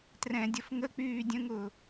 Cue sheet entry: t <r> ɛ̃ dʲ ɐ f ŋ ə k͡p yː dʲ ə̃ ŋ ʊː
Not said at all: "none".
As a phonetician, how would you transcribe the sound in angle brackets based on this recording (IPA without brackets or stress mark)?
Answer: r